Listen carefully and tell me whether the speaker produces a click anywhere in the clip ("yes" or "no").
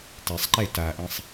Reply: yes